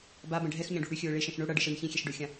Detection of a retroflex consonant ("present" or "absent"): present